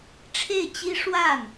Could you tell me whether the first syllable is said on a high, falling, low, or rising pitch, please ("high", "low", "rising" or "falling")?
falling